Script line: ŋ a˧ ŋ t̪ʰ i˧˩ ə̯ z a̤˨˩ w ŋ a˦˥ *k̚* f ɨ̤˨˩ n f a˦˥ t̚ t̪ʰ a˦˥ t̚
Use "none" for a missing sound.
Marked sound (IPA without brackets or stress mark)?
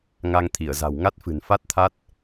t̚